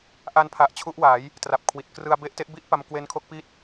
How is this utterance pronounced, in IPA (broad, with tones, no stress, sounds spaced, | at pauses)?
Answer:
ʔ a˦˥ n pʰ a˨˩ ʔ t͡ɕʰ u˦˥ ʔ w a˩˦ j | t r a˨˩ p̚ kʰ w i˨˩ t̚ k r ɯ˧ a̯ b e˦˥ ʔ t e˦˥ ʔ b i˦˥ ʔ p a˧ m k w e˦˥ n kʰ o˦˥ k̚ p i˥˩ t̚